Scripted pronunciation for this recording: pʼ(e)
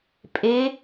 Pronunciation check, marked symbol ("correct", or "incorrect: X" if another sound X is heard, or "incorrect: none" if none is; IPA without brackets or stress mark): correct